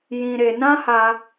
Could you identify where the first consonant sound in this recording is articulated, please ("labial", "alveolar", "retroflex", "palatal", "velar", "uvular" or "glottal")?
palatal